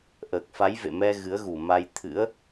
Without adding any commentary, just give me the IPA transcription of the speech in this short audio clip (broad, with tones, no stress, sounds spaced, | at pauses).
ʔ əː˨˩ k̚ f a˨˦ j v ḛ˧˨ m ɛ˧ ɣ ɨ˨˦ ə̯ ɣ u˨˩ m a˧ j t̪ʰ ɨ̰˧˥ ə̯